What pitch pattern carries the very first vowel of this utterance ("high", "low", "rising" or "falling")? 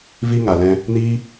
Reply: high